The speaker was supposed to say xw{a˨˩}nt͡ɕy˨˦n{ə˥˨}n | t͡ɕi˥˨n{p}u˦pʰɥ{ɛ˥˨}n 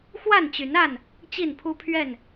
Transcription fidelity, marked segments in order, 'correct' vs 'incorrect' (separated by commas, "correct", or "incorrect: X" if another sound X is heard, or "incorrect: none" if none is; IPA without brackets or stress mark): incorrect: a˥˨, incorrect: a˥˨, incorrect: pʰ, correct